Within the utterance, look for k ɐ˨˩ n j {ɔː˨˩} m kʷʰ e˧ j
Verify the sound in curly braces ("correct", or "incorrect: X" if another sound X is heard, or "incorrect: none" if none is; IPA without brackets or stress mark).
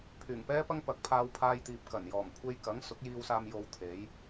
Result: correct